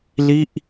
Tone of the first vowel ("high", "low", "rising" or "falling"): falling